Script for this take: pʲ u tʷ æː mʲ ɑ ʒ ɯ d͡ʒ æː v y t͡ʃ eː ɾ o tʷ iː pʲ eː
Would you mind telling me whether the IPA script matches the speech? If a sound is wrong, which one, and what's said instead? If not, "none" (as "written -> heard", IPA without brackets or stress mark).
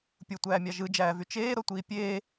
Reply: none